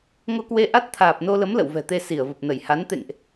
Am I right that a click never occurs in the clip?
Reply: yes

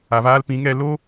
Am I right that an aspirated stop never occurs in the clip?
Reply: yes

